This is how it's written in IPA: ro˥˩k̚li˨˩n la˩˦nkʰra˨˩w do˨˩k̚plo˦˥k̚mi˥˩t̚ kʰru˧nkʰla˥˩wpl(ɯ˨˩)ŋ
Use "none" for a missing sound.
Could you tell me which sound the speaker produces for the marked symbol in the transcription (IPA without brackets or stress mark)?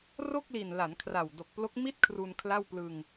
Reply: ɯ˧